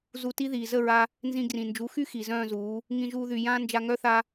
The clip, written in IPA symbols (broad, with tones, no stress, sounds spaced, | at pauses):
z u˧ t i˦ ð iː˨ z ə˦˨ ɹ a˧ | n z ĩ˧ ɡ r ĩ˨ n d͡ʒ u˨˦ x y˦ x i˨ z œ̃ː˦˨ z uː˨˦ | ŋ ĩ˧ ʒ uː˧ ð y˨ j ãː˦ n d͡ʒ a˧ ŋ œ˦ θ a˧